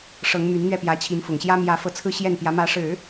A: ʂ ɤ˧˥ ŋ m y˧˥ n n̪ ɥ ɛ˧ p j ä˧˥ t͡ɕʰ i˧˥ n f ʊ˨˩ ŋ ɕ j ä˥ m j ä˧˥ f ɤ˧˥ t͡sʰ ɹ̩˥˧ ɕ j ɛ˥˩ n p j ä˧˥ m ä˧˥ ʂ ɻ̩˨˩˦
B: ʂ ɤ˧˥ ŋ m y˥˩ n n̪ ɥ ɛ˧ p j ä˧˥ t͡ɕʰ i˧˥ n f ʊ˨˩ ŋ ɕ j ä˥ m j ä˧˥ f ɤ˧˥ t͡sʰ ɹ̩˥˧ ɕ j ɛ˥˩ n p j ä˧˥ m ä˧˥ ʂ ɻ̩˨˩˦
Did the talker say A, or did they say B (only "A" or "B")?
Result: A